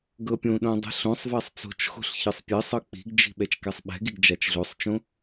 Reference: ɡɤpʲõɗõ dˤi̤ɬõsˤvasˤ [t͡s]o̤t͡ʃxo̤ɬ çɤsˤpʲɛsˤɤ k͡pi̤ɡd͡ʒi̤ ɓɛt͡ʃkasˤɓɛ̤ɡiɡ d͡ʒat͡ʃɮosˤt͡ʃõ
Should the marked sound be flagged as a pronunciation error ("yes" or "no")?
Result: no